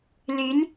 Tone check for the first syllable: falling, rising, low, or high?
rising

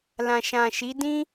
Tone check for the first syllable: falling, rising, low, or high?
low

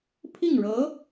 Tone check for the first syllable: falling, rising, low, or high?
falling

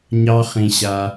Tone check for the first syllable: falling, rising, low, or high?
high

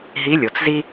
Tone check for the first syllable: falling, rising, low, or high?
rising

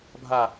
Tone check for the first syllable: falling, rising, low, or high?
low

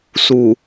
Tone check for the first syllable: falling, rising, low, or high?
low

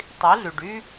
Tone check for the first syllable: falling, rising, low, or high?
rising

